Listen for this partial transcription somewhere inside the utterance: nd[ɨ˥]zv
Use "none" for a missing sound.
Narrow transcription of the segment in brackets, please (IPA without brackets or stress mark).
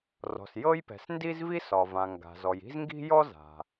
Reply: i˥